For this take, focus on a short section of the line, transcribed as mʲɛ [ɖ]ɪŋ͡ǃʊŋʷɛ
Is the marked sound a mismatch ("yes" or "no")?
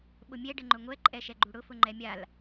no